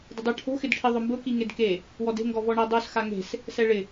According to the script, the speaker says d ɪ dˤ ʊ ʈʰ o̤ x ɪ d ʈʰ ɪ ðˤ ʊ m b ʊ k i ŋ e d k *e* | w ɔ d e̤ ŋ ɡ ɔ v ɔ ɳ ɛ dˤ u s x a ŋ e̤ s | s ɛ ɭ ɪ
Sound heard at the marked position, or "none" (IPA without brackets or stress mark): e